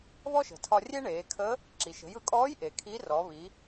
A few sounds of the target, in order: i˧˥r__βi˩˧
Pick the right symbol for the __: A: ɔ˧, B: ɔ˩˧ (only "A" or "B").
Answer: B